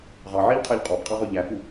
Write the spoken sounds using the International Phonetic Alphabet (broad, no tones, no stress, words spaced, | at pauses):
ʁɑʕeʎqʰɛʎ qʼɔbqʼɑʁɵ ʎæfu